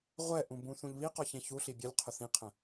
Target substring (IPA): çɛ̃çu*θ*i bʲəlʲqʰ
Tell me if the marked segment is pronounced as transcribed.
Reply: no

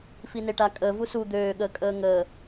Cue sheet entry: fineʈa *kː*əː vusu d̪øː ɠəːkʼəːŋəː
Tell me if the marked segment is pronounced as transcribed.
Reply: no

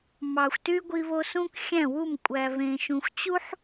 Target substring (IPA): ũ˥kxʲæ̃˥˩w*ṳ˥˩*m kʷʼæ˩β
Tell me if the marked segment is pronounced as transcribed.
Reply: no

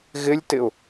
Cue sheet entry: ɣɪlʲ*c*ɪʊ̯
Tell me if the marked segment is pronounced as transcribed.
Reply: no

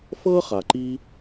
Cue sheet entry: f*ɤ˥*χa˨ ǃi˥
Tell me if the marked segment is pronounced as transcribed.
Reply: yes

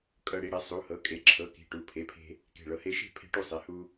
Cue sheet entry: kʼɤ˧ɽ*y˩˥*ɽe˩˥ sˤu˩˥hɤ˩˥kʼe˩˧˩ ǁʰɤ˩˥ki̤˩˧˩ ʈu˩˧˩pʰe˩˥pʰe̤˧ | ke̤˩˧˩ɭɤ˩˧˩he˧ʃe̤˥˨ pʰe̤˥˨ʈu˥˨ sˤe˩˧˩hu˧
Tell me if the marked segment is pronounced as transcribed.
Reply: no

